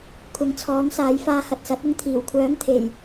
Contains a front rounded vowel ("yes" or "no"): yes